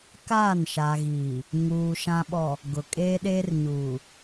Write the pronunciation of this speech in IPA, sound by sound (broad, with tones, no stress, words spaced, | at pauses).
kaː˦˨nʃa˨ɣiː˨ | ŋuː˨ ʃã˨ɓɔ˨ | ɡʊ˨ kʼeː˦ɗeː˦rɲuː˨